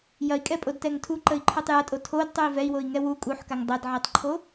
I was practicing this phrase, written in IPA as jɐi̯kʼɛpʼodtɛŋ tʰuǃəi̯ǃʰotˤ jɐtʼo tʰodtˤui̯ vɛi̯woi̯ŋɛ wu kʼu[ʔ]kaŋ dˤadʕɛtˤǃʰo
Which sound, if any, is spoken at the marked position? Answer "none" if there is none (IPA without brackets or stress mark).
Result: ħ